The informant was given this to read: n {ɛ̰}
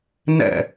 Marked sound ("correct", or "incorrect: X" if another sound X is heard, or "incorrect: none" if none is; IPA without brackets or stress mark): correct